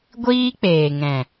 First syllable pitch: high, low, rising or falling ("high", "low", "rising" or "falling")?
high